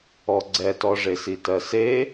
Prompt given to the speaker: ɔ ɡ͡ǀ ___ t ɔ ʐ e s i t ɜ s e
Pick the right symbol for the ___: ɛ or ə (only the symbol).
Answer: ɛ